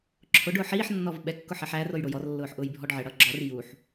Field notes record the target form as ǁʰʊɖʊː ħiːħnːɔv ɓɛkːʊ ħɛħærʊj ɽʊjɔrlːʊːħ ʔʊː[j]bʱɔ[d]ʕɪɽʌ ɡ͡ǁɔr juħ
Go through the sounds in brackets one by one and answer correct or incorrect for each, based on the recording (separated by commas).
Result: correct, incorrect